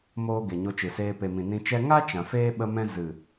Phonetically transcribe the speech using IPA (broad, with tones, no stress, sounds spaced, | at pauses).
m oː˦ ɡ e˨ ɲ o˧ t͡ʃ ɨ˨ s eː˧ p e˨ m ĩ˨ n ĩ˧ t͡ʃ ɛ˦ ŋ a˦ t͡ʃ ã˨ f eː˦ ɓ ə˦ m ɛ̃˦ z ɨ˨